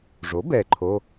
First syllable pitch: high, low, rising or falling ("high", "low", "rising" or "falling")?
rising